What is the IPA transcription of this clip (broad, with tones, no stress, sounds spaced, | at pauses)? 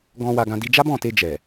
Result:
ɡ ɔ̃˧ w a˧ ɡ ã˧ d i˧ d͡ʒ a˦ b ɔ̃˦˨ t e˧ d͡ʒ ɛ˨